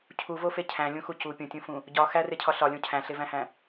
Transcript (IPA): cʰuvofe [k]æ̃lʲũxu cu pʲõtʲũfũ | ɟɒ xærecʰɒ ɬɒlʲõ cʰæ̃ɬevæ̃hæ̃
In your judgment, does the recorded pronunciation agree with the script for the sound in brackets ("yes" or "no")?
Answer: no